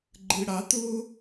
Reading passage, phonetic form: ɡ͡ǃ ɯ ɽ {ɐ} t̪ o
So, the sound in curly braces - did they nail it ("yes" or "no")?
no